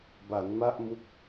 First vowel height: low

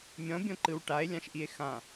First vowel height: mid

